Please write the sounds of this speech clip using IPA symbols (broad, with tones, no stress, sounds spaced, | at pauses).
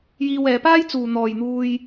j iː˧ w ɛː˨˧ p aː˥ j t͡s uː˨ n̪ ɔː˨ j n̪ uː˧ j